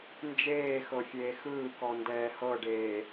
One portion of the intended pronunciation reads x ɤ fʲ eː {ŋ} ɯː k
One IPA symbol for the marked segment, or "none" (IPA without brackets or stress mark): x